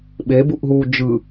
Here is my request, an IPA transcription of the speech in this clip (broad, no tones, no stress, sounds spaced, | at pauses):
ɓ e b u ʔ ɦ uː d͡ʒ ɯ